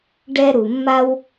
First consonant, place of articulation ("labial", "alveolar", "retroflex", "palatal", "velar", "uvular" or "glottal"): retroflex